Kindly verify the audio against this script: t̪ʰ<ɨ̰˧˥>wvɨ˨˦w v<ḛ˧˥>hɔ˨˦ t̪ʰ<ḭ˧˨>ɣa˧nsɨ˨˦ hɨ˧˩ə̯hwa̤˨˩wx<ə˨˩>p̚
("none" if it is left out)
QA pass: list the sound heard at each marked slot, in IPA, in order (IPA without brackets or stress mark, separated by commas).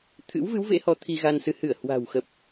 ɨ̰˧˥, ḛ˧˥, i˧, ə˨˩